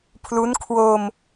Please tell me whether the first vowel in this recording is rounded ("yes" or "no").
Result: yes